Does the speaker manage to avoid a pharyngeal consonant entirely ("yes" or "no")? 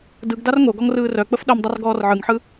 no